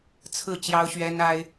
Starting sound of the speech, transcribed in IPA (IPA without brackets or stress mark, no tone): t͡sʰ